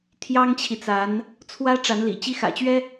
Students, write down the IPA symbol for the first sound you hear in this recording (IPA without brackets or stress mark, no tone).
t̪ʰ